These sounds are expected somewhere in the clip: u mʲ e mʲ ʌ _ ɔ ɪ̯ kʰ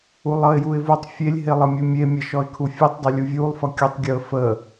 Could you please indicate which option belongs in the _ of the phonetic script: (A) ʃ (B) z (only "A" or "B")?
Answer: A